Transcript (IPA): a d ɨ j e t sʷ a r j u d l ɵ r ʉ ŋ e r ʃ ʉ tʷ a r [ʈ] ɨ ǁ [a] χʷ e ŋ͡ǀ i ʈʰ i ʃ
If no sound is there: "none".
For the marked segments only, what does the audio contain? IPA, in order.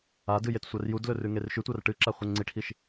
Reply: ʈ, a

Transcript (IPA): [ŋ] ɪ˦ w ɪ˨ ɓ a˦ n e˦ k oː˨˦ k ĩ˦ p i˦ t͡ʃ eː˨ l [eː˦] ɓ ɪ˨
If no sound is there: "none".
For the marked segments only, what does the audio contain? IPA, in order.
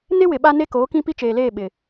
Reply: n, eː˦˨

